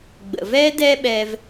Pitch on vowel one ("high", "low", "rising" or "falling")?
low